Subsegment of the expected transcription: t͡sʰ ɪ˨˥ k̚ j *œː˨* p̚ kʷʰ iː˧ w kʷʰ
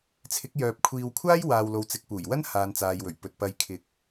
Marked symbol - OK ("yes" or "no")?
yes